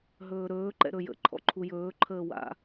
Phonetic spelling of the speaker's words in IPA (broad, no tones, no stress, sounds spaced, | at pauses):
ɦ ɵː ɾ ɵː ǃ ɛ̰ ɾ ɵ j ə̰ ǃʰ ɔ̰ ǃʰ u j ɵː ǃʰ əː w a̰